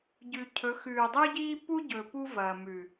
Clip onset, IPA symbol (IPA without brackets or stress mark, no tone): ɟ